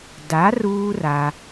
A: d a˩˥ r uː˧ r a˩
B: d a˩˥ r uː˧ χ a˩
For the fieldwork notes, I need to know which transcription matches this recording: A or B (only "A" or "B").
A